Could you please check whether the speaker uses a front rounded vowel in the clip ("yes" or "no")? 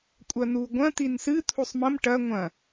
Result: no